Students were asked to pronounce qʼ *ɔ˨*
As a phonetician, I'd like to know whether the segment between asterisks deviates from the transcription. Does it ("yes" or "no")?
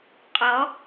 yes